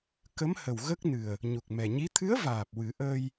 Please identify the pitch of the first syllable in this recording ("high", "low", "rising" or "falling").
rising